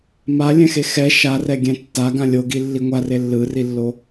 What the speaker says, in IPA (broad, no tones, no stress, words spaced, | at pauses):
malʲɛ̃xe xɛ ʃarɛɡʲɛ̃ tːaɡã lʲoɡilːi ŋʷare lːɯrilːo